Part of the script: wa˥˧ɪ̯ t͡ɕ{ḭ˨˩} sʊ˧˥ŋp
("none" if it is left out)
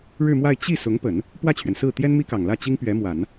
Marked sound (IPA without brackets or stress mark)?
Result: i˥˩